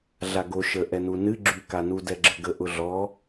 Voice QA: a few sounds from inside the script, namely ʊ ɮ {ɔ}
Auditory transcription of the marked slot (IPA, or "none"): ɔ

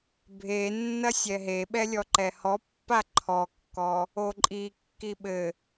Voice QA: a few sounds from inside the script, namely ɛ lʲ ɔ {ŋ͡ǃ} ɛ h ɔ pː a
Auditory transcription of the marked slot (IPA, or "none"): ǃ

